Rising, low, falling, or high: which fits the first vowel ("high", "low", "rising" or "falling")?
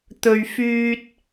low